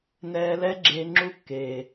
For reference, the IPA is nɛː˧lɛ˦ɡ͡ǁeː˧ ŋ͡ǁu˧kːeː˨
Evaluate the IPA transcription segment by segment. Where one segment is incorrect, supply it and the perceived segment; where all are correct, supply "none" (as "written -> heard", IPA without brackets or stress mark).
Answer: none